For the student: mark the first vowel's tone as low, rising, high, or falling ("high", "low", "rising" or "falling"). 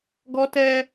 high